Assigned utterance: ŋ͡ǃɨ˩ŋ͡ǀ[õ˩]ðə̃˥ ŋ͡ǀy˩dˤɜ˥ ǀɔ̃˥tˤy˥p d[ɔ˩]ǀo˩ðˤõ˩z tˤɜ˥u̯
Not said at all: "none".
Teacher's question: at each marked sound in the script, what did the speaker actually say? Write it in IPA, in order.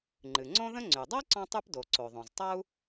õ˥, o˩

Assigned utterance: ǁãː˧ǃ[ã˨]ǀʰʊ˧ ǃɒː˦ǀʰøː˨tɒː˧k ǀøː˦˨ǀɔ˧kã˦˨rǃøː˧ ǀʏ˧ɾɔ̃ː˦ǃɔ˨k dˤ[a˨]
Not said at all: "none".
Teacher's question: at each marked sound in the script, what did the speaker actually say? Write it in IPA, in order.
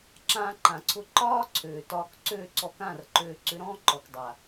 ã˨, a˨

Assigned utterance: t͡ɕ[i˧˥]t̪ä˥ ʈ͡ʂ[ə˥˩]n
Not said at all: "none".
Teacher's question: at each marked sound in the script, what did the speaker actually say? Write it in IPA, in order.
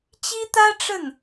i˥, ə˥˩

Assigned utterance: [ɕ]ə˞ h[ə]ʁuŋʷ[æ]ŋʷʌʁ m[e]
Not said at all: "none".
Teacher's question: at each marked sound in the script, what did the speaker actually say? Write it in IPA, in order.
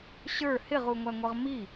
ɕ, ɪ, æ, i

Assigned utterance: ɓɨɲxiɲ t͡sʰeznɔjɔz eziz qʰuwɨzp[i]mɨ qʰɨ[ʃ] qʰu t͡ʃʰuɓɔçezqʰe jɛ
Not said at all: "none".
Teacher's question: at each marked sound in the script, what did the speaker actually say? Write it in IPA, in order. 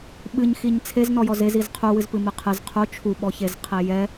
ɨ, z

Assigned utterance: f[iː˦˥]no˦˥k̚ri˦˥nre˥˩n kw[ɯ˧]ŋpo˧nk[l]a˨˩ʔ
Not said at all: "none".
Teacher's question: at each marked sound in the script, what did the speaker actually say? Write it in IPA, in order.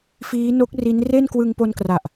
iː˦˥, ɯ˧, r

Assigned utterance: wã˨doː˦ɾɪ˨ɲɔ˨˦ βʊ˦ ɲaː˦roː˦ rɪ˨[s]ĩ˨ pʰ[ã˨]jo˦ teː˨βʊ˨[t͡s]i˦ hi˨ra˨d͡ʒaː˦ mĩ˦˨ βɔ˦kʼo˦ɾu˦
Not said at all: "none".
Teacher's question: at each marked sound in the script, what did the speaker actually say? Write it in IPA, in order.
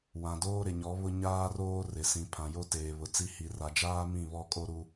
s, ã˨, t͡s

